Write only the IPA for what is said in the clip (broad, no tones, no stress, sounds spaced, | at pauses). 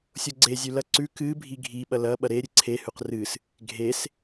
sʲ o ɡ͡ǀ e zʲ ʉ l ɐ ǀ ʉ k ɨ bʱ i ɡʱ i ɓ ɐ l ɐ ɓ ɐ ɾ e ɾʲ ɨ ǀʰ e h ʉ q r ɨ s | ɡʱ e s